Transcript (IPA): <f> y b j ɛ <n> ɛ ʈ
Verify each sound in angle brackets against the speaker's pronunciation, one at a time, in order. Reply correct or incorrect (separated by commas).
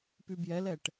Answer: incorrect, incorrect